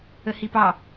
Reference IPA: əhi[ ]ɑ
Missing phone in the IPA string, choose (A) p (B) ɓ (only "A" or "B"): A